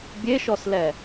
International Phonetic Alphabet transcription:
bʲ e ʃ ɔ s l ɛ

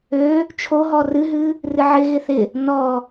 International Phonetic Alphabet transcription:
ø | t͡ʃʰ o ɦ ɔ r ɨ ɦ ɨ | r ɨ ʕ ɪ ɣ ɪ θ ɪ | n ɔ

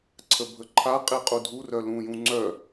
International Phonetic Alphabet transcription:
ǀʰ ə bʱ ə ǃʰ a qʼ i qʼ u dʱ u r œ l ũ j ũ ŋ͡ǀ œ

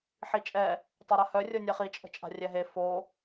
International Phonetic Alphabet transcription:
ħ i t͡ʃʼ ɛ | tˤ ø ɾ a h œ rʲ o nʲ ɛ χ i t͡ʃʼ ə̤ t͡ʃʼ a̤ rʲ ɛ ɦ e f o

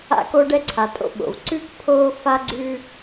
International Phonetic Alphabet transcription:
a̰˦ k o˦ ɖ ɛ˦ ǀʰ a˨ tʼ o̰˦ ɓ o̰˨ v ǀ ʉ˥ k pʰ oː˥ f a˥ ɡ͡ǀ ʉː˥

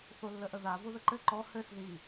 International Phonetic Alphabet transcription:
θ o lː ə ʔ ə ð a v o ð ə ǃ ɘ ǃ ɔ h ɘ s ð i

